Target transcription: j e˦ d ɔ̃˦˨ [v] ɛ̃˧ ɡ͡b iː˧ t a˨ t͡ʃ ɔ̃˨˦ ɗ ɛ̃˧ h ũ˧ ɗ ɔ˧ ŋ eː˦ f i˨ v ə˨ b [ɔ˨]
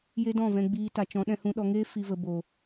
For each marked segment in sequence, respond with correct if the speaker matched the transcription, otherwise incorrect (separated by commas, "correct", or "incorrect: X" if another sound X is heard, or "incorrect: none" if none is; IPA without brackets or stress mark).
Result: correct, incorrect: o˨